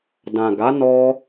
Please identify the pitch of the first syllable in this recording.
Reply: low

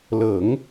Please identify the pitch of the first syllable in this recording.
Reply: low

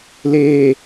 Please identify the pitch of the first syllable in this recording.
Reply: low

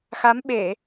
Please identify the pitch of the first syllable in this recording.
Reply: rising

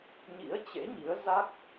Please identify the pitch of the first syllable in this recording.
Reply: rising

